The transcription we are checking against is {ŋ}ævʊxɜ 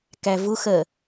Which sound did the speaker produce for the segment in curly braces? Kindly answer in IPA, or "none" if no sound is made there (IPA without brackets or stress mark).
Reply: k